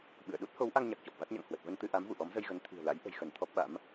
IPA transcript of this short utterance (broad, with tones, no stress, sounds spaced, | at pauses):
ɓ ɨ̰˧˨ ə̯ ɗ u˦˥ t̚ h o˨˦ w ʔ a˧ ŋ ɲ a˨˩ k̚ t͡ɕ ɔ˨˩ p̚ v a˦˥ t̚ ɲ a̰˧˨ ŋ h w ə˨˩ t̚ v ə˧ n t̪ ɨ˧ ʔ a˨˦ m v ṵ˧˨ ʔ ɔ˨˦ m z ə˧ j ɣ ə˨˦ n t̪ʰ i̤˨˩ ə̯ l a̰˧˥ j ʔ ə̤˨˩ j x ə˧˩ n t̪ʰ ɔ˦˥ p̚ ɓ a̰˧˥ m